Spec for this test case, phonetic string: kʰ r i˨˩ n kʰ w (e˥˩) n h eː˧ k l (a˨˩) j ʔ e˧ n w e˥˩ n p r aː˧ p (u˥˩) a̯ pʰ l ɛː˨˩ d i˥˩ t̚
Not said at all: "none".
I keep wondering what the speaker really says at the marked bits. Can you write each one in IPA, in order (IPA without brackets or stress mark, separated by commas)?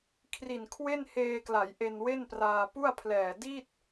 e˥˩, a˩˦, u˥˩